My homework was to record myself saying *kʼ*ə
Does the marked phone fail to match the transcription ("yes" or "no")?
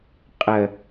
yes